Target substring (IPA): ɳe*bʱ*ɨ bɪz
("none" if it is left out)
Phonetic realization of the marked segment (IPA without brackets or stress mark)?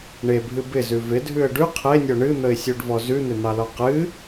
bʱ